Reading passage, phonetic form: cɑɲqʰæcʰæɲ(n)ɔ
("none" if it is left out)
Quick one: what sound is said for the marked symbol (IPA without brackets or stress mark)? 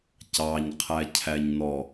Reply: n